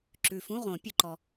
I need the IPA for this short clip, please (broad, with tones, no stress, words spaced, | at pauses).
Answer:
ǁʉ˨fũ˧˥˧ʁõ˨˩˦ pʲɵ˨ǃɔ˨